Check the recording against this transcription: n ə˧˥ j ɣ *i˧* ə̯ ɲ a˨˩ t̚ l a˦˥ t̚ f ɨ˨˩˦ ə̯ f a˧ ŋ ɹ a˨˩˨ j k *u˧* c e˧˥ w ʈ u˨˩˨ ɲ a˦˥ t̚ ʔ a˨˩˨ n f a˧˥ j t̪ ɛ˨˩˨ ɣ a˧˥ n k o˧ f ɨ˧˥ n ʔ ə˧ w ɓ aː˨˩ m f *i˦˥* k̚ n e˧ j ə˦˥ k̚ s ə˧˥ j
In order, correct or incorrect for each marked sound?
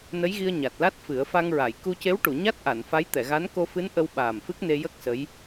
correct, correct, incorrect: ɨ˦˥

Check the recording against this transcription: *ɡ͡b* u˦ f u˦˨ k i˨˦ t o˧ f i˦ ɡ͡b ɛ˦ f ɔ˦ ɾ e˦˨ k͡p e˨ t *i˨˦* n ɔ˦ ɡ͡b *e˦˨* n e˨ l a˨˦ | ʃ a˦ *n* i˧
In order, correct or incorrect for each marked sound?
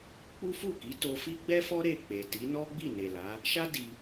incorrect: k͡p, correct, incorrect: i˦˨, incorrect: d

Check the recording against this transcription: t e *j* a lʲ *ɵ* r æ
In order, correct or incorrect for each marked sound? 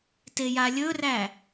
correct, correct

